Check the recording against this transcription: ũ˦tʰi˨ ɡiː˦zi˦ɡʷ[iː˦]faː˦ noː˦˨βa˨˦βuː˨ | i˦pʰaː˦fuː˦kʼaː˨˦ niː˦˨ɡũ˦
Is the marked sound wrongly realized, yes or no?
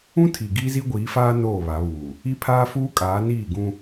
yes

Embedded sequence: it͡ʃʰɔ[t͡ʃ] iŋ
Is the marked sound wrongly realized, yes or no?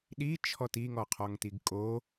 yes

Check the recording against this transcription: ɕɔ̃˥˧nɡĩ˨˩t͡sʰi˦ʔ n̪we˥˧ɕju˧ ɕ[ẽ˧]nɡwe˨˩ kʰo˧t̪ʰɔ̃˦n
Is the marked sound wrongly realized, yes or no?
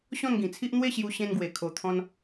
no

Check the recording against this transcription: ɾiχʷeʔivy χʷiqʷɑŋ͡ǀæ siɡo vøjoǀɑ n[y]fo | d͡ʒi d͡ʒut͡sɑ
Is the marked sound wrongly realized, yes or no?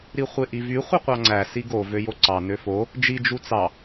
yes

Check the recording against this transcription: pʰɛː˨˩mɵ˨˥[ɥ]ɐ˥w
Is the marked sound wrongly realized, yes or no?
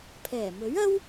no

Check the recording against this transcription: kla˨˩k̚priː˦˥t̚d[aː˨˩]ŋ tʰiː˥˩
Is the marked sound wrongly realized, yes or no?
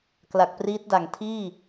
yes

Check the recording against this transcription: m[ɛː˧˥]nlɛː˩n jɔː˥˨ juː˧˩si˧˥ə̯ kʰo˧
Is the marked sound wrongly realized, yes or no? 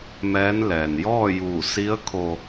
no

